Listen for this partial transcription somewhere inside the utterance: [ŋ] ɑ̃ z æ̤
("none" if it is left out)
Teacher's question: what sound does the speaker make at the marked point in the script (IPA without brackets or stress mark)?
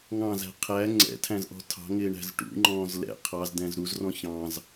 ŋ